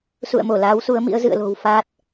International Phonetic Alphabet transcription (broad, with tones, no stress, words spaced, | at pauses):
sṵ˧˨ə̯mo˧˩ laː˨˦wsu˨˦ə̯mḭ˧˥ə̯ zɨ̰˧˨ə̯lo̤˨˩w faː˦˥t̚